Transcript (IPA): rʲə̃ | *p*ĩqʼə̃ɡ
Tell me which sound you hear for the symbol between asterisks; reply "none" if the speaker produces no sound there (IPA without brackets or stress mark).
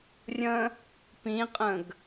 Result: p